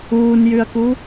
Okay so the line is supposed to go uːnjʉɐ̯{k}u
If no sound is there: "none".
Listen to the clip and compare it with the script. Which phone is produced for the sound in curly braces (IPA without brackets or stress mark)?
k